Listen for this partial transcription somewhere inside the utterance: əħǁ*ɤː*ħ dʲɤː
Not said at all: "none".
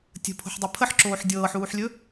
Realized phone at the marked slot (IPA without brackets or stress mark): oː